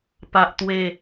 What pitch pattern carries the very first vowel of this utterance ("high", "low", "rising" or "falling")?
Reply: high